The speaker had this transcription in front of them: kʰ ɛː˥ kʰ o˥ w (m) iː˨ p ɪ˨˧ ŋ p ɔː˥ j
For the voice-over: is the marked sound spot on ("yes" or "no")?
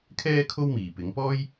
yes